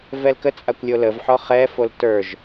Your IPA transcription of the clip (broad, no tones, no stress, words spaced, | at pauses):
vɛlkət͡sʼakʷ lʲoləvħɔ χɛfol tə˞ʒ